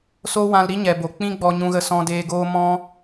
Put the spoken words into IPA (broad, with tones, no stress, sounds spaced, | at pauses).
s o˦ w ã˧ l ɾ i˦ ɲ ɛ˨ b o˨ k͡p ĩ˦ ɡ͡b ɔ˧ ɲ ũ˧ ɣ ə˧ s ɔ̃˧ d eː˧ ɡ oː˦ m ɔ̃˦